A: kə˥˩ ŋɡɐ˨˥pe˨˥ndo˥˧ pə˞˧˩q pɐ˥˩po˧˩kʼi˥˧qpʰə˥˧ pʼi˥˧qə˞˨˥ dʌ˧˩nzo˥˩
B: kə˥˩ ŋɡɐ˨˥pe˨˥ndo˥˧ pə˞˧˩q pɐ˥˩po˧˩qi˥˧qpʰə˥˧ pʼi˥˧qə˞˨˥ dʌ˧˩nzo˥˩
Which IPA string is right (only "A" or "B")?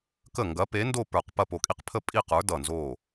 A